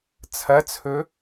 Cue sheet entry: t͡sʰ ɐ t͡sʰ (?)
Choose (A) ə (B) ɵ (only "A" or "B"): B